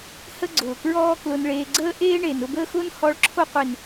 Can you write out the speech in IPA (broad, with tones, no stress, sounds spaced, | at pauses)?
h ə˦ ɡ͡ǀ ʊː˨ k ɹ ɔː˦ k l ʊ˧ n ɭ eː˧ ɡ͡ǀ əː˦ ʔ eː˦ ɳ e˨ n ʊ˧ b əː˦ x ʊː˦ n h ɔ˨˦ ɭ ǁʰ o˧ qʷ e˨ n